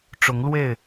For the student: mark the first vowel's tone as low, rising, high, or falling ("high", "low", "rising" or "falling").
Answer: rising